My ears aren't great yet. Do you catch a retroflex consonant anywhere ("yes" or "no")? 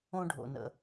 yes